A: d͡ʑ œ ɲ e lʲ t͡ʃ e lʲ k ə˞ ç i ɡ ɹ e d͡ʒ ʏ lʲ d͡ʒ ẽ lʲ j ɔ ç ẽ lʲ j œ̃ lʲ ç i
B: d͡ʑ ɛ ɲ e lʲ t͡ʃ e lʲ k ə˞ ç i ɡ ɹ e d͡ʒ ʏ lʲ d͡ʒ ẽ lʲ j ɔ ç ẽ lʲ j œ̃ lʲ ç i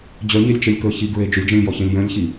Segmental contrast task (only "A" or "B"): A